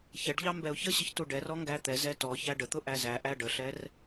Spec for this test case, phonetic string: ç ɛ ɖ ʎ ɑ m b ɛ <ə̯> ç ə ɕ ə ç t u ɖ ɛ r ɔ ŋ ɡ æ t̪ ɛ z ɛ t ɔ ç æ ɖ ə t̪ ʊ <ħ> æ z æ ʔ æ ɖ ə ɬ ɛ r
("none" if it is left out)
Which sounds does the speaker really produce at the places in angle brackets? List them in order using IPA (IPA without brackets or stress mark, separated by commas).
ʊ̯, ʔ